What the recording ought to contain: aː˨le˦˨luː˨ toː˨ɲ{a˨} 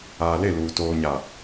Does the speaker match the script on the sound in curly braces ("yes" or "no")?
yes